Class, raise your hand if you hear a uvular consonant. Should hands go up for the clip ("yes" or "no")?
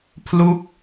no